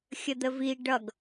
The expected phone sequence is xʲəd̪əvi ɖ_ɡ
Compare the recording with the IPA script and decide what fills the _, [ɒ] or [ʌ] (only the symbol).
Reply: ʌ